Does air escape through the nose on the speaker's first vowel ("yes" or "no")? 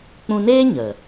yes